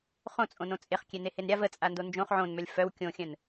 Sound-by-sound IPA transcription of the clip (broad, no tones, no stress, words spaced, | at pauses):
χõt͡sʼõnõ t͡sʼeχkʲenehen ɾʲav ət͡sʼando nd͡ʒõχ ʕõnmœlʲ fœw kʲõxʲœ̃n